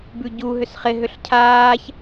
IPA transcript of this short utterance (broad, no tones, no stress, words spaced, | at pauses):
bʉɟu ɦʏsχɪ ɦʏɬcʰaːç